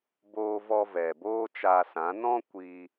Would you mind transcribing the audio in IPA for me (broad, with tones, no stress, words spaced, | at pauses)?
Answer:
boː˧vɔ˧ vɛ˨boː˦t͡ʃa˧sã˨˦ nɔ̃˦ kʷi˧